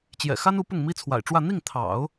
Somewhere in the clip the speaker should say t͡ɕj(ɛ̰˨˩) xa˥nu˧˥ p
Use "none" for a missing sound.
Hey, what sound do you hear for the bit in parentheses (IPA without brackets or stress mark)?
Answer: ɛ̰˨˩